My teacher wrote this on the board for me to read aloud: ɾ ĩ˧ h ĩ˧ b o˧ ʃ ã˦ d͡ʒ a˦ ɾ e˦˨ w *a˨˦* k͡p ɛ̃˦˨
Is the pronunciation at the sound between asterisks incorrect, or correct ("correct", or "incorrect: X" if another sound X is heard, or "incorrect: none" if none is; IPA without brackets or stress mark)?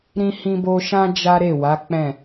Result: correct